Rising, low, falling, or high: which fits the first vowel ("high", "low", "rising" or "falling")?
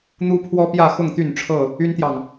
high